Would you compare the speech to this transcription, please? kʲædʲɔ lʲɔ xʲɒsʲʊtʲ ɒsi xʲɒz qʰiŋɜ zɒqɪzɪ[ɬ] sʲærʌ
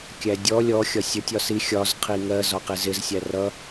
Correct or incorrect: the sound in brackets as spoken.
incorrect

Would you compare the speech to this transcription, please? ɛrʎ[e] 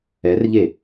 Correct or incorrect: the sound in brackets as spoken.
correct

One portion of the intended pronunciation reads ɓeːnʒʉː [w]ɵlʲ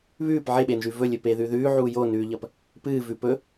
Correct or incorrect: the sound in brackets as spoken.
incorrect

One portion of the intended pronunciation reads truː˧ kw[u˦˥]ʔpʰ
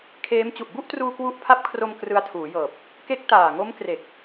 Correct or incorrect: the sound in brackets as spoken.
correct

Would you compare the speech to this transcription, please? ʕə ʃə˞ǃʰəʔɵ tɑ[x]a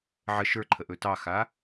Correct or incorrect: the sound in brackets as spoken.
correct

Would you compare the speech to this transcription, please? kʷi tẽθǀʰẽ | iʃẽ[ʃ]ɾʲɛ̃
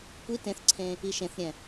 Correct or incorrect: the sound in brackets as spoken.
incorrect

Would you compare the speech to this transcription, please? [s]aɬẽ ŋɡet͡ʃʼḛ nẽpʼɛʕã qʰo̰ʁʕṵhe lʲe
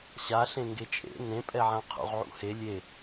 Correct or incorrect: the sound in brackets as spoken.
incorrect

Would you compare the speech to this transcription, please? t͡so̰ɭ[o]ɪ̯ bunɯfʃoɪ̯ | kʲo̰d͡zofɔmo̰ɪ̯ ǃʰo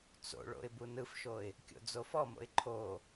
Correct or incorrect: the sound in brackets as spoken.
incorrect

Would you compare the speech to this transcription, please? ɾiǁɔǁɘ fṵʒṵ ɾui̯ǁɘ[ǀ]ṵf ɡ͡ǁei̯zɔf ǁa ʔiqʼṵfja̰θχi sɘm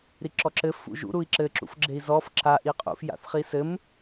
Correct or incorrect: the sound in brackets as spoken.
incorrect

